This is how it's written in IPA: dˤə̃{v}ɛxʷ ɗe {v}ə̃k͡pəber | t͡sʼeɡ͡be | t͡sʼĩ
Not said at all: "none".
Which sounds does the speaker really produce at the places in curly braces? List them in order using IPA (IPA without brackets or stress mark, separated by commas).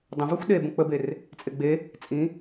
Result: v, b